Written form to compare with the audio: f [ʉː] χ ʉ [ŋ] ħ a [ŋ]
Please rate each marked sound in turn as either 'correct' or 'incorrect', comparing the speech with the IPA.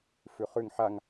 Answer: incorrect, correct, correct

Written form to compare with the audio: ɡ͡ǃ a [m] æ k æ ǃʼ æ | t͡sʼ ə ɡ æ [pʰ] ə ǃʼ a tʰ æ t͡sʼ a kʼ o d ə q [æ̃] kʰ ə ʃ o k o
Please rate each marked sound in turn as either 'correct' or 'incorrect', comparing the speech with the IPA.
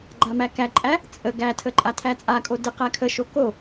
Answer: correct, incorrect, incorrect

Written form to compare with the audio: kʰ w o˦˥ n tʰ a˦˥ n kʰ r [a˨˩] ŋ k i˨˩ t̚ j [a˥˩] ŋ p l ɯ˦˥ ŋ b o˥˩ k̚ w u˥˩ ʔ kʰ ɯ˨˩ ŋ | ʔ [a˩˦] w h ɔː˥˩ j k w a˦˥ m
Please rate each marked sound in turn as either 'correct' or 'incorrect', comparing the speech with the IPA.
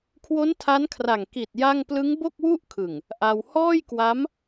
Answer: correct, correct, incorrect

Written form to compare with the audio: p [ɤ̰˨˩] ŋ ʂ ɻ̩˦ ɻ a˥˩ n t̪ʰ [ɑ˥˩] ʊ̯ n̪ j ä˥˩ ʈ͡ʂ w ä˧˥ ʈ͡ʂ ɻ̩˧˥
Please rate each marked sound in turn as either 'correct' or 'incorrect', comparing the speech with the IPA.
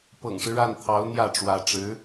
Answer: correct, incorrect

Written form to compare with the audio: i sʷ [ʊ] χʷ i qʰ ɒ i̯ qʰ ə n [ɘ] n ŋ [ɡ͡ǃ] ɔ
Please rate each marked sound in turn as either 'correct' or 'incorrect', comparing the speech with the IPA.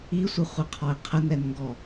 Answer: incorrect, incorrect, incorrect

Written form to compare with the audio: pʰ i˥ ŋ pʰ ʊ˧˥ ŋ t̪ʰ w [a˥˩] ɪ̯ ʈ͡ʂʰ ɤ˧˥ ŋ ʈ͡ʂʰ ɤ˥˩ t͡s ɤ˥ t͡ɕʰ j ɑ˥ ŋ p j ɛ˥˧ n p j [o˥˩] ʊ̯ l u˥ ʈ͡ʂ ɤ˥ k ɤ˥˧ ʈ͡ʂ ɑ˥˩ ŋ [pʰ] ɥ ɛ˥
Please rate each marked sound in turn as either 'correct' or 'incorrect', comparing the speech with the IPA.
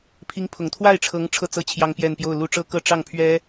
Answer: correct, correct, correct

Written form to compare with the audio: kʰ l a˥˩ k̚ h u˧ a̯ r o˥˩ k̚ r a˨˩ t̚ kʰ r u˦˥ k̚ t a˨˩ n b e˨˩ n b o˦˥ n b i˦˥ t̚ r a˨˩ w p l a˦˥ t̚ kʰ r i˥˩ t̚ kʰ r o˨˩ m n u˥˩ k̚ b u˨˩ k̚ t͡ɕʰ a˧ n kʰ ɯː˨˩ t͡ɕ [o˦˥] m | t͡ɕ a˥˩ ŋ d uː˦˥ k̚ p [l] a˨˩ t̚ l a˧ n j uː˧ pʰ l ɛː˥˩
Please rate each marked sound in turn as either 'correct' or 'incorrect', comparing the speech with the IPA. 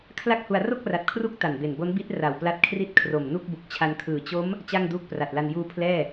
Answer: correct, incorrect

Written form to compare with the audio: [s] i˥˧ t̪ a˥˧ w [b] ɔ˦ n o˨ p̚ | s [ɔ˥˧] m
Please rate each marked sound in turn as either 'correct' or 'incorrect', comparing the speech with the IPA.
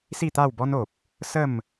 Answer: correct, correct, incorrect

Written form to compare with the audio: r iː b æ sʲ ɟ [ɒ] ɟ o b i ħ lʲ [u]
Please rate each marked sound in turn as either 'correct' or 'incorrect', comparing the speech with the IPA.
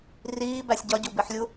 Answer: correct, correct

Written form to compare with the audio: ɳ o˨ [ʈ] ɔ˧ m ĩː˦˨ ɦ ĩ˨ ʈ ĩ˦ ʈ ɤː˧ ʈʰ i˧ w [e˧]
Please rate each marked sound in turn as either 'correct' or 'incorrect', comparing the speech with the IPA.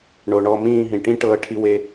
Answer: incorrect, correct

